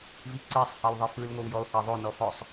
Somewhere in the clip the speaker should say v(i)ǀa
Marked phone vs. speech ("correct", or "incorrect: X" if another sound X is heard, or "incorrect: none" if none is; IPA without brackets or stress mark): correct